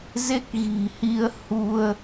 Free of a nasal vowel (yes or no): yes